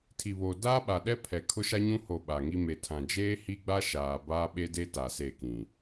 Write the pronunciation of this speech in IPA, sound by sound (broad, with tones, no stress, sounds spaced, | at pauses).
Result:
tʰ i˨ β oː˨ d aː˦ ɓ a˨ ɗ ɛ˦ pʰ ɛ˨ kʰ ʊ˦ ʃ a˦ ɲ ũ˦ h o˦˨ ɓ a˨ ŋ i˦ m e˨ tʰ ã˨ d͡ʒ eː˦ h i˦ ɡ͡b a˦ ʃ aː˨ b aː˦ ɓ e˦ d e˦ t a˨ s e˦˨ k ĩ˨